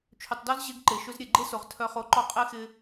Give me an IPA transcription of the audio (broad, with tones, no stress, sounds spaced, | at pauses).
t͡ʃʰ ʏ˨ tˤ d ɔ˦ z ʑ e˦ ɡ ǃ e˨ ʃ ʏ˦ z ɾʲ e˨ ɡ͡ǃ e˦ s o˨ ʁ tʰ œ˦ χ o˦ ǃ ɔ˦ qʼ e˦ x ɪ˦